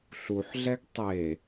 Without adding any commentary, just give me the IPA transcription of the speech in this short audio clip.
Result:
ɬ u ħ ɮ ɛ ɡ tˤ e

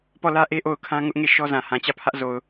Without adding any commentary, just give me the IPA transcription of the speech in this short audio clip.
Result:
p ɔ˦˨ l ä˦ ʔ e˦ ʔ o˦˨ ʊ̯ kʰ ã˦ ŋ ʊ˦ ʔ ŋ e˦˨ ʃ ɔ˦ z ã˨ h ã˨ t͡ɕ ä˦˨ pʰ ä˦ ʔ z o˨ ʊ̯

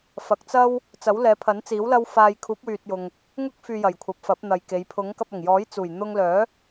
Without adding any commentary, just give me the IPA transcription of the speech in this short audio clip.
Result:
f ɐ˨ k̚ t͡s ɐ˥ w | t͡s ɐ˨˥ w l ɛː˨˧ pʰ ɐ˨˥ n t͡s iː˨˥ w l ɐ˥ w f aː˧ j kʰ uː˨˥ p̚ w yː˨ t̚ j ʊ˨ ŋ | ŋ ʊ˥ k̚ f yː˧ j ɐ˨˩ j kʷʰ ɐ˨ p̚ f ɐ˨˥ p̚ n̪ ɐ˨ j k e˨˧ j pʰ ʊ˨˥ ŋ k ɐ˧ p̚ ɐ˨˩ ŋ j ɔː˨˥ j t͡s uː˨˩ j n̪ ʊ˧ ŋ l œː˨˥

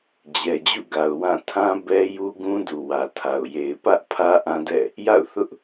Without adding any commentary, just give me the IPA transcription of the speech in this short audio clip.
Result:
d͡ʑ ɛ˨ d͡ʑ ṵ˦˨ ɡ a˨ ʊ̯ w ã˦˨ tʰ ã˦ b ɛ˦ j u˦ ɡ ũ˦ d u˨ w ä˨ tʰ a˨ ʊ̯ j e˨ ɪ̯ p ä˦ ʔ pʰ ä˦ ʔ ã˦ d ɛ̰˦˨ | j a̰˦˨ ʊ̯ θ ʊ˦ ʔ

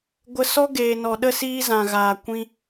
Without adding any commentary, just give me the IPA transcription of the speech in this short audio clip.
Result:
ɡʷ ə˧ s ɔ˦ ɡ eː˨ n ɔ˨ ɗ ə˧ s iː˧ z ã˨ ɣ aː˨ kʷ ĩ˧

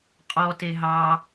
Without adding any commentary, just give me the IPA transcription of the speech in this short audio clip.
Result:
qʼ ɔ t e ɦ ɑ

